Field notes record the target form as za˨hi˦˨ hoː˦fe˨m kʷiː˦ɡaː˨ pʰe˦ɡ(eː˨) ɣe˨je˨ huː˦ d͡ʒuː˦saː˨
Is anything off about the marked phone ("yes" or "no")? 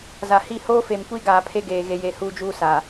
no